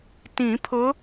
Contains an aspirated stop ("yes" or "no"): yes